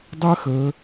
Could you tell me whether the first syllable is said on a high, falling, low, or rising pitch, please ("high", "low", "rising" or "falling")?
high